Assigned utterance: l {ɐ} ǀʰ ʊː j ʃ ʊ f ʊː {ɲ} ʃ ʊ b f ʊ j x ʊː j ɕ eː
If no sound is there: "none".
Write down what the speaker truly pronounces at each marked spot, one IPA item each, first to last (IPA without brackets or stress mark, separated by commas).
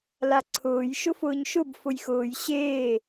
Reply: a, ɲ